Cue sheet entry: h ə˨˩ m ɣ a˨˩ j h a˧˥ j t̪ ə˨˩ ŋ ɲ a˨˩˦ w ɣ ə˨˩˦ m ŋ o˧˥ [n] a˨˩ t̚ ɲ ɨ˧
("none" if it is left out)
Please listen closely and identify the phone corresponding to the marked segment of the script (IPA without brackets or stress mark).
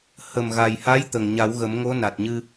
n